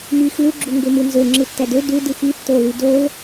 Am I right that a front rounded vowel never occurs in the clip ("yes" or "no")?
no